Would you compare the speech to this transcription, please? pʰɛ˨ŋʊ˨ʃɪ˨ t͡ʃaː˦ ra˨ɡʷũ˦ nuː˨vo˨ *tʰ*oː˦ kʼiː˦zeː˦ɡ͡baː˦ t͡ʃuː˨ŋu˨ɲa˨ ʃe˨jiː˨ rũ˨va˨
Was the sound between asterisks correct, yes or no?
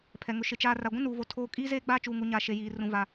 yes